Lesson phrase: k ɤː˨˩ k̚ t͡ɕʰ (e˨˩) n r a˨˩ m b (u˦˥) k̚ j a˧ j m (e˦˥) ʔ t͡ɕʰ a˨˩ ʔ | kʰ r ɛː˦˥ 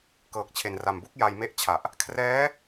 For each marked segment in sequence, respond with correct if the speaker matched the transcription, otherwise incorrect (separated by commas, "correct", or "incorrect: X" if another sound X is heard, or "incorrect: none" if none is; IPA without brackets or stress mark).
correct, incorrect: u˥˩, incorrect: e˥˩